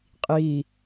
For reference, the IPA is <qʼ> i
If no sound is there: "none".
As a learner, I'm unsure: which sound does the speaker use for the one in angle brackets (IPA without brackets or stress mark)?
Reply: qʼ